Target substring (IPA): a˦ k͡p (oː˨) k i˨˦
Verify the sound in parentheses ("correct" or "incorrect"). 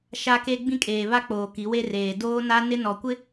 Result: correct